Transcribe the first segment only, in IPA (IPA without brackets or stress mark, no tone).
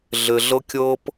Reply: ɮ